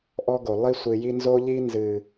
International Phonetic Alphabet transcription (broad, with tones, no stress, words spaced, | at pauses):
ʔɔ˦ɡo˨ lˠi˦sʷɨ˨ji˦ nzo˦ʎi˦nzɨ˨